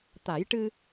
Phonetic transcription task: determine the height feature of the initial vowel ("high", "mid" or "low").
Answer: low